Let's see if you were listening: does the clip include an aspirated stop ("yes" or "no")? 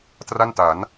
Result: no